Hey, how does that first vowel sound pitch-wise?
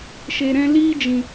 low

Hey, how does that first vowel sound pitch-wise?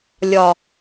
low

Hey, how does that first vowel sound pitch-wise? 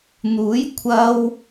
rising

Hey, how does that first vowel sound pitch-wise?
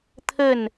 falling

